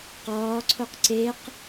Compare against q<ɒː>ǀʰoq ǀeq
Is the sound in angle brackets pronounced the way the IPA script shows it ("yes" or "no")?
yes